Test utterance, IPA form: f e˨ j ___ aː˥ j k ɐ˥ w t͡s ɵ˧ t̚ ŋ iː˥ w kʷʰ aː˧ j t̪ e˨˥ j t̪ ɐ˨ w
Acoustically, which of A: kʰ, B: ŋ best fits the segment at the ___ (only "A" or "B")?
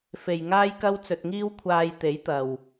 B